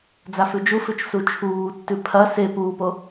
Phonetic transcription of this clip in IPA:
d͡z a f ʉ d͡ʒ u f ʉ t͡ʃ s u t͡ʃʰ uː tː ʉ pʰ ɐ s e p uː p o

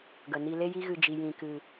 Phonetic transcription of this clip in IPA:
ɡ ə˨ n i˧ l e˦ j i˦ ɣ ɨ˧ d͡ʒ i˨ j ĩ˨ k ɨ˨

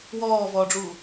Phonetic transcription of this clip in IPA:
w ɔː v ɔː ɖ͡ʐ u

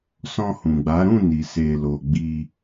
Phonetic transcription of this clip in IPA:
s ɔ̃˧ h ũ˨ ɡ͡b a˨˦ ɾ ũ˦˨ n i˨ s e˨ l o˨ ɡ͡b i˧

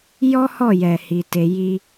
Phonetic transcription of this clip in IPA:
j ɔ˦ h ɔ˦˨ j ɛ˨ h i˧ t e˧ j i˦

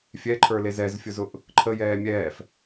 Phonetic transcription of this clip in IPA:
fʲ ɛ ǃʰ ə˞ l e z ɛ z fʲ ʊ z ʊ ʔ | ǃʰ ə j ɛː mʲ ɛː f

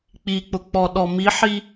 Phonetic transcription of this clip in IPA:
k͡p i k͡p ʊ k͡p ɔ ɗ ɔ m i ħ i

